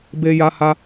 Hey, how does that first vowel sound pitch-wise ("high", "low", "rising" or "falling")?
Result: high